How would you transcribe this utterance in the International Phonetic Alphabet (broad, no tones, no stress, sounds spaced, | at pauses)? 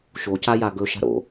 ʃ o c a j a ɡ ɵ ʃ a̤ ɾ o̰